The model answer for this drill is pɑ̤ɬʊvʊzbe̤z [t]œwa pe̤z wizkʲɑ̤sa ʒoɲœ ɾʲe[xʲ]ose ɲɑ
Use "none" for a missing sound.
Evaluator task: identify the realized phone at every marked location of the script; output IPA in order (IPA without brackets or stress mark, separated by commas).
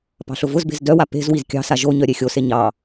d, xʲ